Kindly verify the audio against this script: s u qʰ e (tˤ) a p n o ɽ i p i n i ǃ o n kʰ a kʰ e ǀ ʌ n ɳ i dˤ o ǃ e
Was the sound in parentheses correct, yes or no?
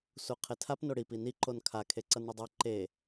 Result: no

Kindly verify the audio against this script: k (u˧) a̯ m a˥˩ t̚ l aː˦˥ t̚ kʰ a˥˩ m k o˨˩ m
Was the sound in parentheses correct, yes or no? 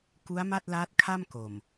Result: no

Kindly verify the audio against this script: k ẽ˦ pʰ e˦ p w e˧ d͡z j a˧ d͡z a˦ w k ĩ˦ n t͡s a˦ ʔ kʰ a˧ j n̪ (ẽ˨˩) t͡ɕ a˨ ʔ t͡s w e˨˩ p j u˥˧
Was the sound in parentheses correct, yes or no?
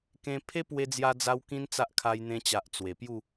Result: no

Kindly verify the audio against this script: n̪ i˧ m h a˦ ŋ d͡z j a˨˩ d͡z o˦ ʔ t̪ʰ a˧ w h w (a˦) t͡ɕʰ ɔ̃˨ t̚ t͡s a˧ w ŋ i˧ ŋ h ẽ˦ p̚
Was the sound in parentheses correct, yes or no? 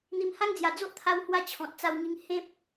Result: yes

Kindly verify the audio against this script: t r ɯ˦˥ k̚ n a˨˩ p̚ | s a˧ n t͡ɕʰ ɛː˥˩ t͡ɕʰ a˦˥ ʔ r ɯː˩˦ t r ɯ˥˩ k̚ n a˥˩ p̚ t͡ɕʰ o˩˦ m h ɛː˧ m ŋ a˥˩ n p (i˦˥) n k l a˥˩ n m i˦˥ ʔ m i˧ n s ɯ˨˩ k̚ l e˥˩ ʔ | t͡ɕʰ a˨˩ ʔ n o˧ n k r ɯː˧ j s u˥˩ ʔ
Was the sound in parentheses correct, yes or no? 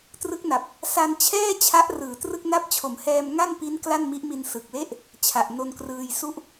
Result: yes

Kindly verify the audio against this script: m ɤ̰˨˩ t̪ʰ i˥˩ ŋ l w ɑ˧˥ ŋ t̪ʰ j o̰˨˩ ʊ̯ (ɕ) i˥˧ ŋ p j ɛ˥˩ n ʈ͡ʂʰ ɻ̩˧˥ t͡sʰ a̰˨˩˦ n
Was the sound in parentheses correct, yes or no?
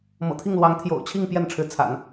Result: no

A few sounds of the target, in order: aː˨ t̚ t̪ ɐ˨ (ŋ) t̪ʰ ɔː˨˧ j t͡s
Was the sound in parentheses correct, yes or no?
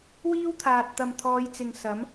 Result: no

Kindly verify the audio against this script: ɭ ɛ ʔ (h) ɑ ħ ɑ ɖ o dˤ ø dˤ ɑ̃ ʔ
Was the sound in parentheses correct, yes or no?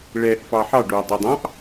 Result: no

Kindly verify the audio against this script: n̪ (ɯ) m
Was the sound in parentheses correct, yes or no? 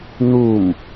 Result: no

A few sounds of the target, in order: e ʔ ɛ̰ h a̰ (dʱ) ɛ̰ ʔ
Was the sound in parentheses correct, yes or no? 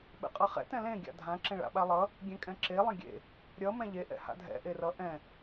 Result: yes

